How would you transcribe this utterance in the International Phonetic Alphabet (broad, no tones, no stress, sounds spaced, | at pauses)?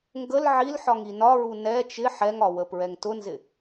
ŋ ɡ ə l ʕ i l ħ ɒ ŋ i n ɒ ɹ u n ɛ t͡ʃ ɪ ħ ɛ ŋ ɒ w ə p ɹ ɛ ŋ t ʊ n z ɪ